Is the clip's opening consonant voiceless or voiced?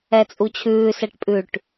voiceless